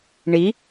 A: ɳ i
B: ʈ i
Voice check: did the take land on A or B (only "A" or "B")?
A